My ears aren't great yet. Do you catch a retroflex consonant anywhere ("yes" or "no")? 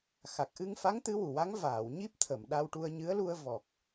yes